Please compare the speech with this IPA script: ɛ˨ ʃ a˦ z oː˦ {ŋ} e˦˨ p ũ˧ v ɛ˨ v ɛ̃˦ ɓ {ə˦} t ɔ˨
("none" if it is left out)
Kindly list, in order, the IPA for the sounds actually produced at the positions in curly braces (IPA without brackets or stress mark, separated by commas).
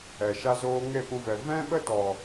ŋ, ə˦